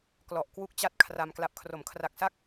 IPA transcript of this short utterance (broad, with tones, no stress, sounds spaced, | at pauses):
k l ɔ˨˩ ʔ k w u˥˩ k̚ t͡ɕ a˥˩ t̚ kʰ r a˧ m k l a˨˩ p̚ kʰ r o˩˦ m kʰ r a˨˩ k̚ s a˥˩ k̚